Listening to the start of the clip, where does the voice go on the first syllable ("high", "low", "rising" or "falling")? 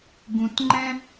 low